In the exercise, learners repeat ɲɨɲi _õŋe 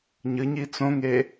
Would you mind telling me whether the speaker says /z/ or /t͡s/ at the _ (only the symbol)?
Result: t͡s